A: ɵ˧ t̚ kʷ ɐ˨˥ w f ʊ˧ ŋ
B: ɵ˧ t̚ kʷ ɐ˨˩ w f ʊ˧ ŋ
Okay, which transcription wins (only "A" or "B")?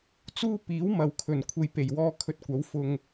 A